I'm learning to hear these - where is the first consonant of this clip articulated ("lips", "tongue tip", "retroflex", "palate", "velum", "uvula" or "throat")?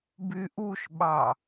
lips